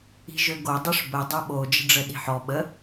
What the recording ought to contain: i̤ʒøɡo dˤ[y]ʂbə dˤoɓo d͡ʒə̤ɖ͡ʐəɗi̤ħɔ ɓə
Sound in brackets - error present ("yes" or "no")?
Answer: no